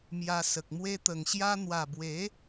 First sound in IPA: m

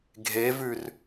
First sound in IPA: ɡʱ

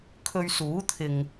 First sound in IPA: kʰ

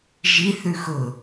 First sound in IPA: ʒ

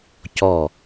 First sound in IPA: c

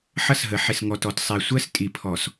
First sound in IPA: ħ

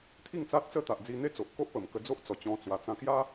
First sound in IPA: t̪ʰ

